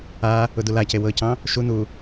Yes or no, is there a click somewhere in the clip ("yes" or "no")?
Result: no